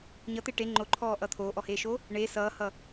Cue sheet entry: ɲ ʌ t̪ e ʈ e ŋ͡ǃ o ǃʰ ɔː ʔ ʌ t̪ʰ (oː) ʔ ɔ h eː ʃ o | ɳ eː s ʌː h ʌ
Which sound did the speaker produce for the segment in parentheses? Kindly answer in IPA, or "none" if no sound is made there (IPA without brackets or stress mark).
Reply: oː